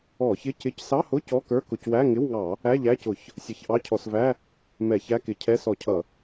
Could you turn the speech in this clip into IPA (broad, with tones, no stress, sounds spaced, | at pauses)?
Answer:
ɔ˧˩˧ ç ɪ˧˥˧ c ɪ˧˥˧ c s ɑ˧˥˧ h ʊ˧˥˧ c ɔ˧˥˧ k ə˞˧˥˧ k ʊ˧˩˧ c w æ˧˥˧ ŋ ɪ˧˥˧ w ŋ ɑ˧˩˧ | æ˧˥˧ ʎ æ˧˥˧ c ʊ˧˩˧ ç | sʲ ʌ˧˩˧ ç ʔ ɑ˧˥˧ cʰ ɔ˧˩˧ s v æ˧˥˧ | m ɛ˧˩˧ ç æ˧˥˧ k ɪ˧˩˧ cʰ ɛ˧˥˧ s ɔ˧˩˧ cʰ ʌ˧˩˧